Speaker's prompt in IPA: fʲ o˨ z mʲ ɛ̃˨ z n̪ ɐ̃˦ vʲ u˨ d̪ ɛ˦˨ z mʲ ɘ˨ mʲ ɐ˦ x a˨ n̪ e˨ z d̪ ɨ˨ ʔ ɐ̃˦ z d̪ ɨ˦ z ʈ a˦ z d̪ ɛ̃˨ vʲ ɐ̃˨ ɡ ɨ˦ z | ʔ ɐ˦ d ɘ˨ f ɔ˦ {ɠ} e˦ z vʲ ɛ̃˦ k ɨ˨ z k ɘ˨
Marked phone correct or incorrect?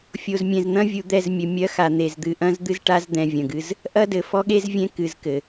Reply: correct